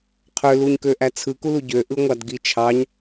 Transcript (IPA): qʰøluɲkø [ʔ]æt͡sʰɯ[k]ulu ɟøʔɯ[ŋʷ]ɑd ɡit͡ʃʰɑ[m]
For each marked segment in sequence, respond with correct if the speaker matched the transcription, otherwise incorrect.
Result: correct, correct, correct, incorrect

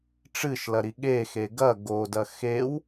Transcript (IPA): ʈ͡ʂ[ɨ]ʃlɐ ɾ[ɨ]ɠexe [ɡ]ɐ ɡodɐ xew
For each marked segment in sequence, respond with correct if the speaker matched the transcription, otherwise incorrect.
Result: correct, incorrect, correct

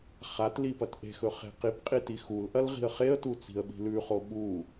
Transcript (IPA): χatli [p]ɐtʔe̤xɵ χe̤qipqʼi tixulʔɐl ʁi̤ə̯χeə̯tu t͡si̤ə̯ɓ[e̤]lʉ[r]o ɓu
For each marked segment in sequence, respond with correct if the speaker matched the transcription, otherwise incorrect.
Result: correct, incorrect, incorrect

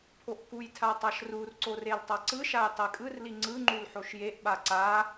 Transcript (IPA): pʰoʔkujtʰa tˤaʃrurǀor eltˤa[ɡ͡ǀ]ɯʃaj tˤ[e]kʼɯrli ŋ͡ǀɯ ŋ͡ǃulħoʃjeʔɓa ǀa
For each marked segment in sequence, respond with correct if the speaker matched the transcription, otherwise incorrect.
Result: incorrect, correct

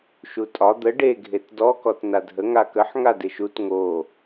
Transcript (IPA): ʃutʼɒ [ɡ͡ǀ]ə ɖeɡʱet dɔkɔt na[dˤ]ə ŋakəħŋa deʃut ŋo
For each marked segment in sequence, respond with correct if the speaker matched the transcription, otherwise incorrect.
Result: incorrect, incorrect

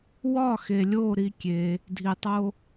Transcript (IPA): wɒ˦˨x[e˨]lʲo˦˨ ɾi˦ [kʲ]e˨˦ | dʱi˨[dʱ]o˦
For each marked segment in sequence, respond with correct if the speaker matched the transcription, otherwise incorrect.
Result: correct, correct, incorrect

